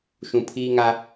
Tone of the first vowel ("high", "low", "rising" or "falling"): low